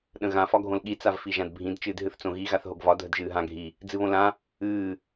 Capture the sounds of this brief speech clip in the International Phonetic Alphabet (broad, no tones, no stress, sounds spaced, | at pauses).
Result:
ɗ ə̃ ɣ ã f ɒ ɡʱ õ l ɠ i t͡s a v f i ʒ ã d bʱ ĩ d t͡ʃ ɨː d ɦ ɨ θ t͡s õ ɣ i ɣ a θ ɦ o ɡ v ɒ dʱ ə d ʒ ɨː ɦ ã ɡʱ i | d͡z ɨ β õ l ã | ɨː